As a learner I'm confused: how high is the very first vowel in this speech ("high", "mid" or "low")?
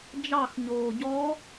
low